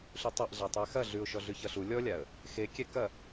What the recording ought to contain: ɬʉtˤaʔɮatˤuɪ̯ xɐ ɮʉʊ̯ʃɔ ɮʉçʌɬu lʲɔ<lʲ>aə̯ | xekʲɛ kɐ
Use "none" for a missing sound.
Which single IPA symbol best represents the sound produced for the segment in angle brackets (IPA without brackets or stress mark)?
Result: lʲ